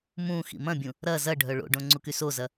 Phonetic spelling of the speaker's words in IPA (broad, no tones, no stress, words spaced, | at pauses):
mũ xḭmɐ̃bʲũ | ɾɐ zɐɖʱœ ɭo̰ɖõ ŋ͡ǀukysozɐ